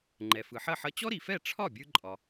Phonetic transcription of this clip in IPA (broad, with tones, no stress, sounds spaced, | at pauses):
ŋ͡ǃ ɛ˩ f ɯ˩ ħ ɐ˥˩ ħ ʌ˧ t͡ɕ ɔ˥ ɾ i˩ f ɛ˥˩ ʈ͡ʂʰ ɒ˥˩ bʲ ɯ˧ ǃʼ ɒ˩